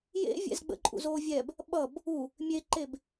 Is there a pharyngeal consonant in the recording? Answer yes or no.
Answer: no